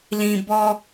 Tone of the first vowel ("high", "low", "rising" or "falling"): low